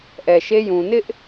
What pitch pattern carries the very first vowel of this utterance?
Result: low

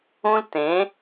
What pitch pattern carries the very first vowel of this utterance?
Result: high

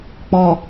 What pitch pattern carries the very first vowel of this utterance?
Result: low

